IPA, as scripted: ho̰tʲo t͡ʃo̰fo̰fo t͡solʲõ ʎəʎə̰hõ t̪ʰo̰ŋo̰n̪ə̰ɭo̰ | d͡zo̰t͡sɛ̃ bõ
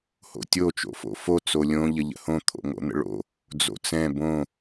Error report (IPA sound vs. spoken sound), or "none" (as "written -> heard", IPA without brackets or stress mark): none